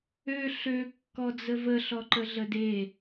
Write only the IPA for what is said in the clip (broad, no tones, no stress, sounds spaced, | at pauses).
ø ɬ ø kː ɔ d͡z ə v ə ɬ ɔ ǃ ə ɮ ə d e